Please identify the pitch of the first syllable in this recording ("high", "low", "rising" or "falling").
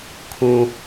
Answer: low